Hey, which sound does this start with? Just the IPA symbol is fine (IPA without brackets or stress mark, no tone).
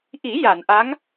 ʔ